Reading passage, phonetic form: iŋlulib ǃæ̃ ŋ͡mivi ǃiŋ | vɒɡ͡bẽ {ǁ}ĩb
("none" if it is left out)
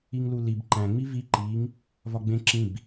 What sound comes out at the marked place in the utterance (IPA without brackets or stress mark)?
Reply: ǁ